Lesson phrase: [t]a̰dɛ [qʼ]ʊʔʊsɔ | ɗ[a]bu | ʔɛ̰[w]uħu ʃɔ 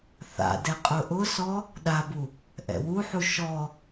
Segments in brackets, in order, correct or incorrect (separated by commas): incorrect, correct, correct, correct